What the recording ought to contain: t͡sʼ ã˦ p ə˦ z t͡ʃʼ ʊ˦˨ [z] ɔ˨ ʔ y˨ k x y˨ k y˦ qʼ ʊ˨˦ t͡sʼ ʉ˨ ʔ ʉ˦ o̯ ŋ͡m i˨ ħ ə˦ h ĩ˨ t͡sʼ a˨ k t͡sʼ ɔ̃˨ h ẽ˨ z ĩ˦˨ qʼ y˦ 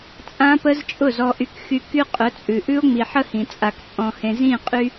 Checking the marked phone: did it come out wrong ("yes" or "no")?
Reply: no